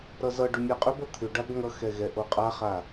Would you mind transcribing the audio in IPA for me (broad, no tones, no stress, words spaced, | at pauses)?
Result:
ɾʌzʌɖʏ mʲaqʼʏbʌ t̪ʰʏ ɖabŋʌxɛ ɣɛʔoqʼaχa